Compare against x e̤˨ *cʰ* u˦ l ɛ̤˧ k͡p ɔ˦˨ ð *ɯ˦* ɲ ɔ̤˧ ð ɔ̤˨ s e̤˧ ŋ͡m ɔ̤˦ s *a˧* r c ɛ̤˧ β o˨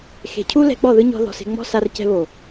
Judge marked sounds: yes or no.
yes, yes, yes

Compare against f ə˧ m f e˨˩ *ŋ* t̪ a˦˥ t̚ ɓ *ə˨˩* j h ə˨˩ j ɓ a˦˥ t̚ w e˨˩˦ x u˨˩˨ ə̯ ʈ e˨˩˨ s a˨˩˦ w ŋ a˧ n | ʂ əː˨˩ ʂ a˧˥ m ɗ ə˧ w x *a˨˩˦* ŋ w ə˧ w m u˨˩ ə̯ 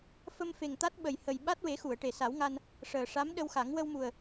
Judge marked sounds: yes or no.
yes, yes, yes

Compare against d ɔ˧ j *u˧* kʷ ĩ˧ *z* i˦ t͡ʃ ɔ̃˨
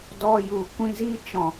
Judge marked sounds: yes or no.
no, yes

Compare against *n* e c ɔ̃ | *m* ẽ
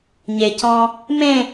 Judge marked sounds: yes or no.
no, yes

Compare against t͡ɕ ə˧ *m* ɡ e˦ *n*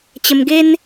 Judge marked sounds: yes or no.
yes, yes

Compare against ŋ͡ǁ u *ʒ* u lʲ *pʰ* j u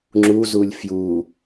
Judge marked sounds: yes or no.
no, no

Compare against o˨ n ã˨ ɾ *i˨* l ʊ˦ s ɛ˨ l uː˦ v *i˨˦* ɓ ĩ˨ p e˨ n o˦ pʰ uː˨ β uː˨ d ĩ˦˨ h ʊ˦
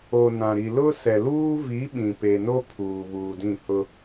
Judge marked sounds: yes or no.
yes, yes

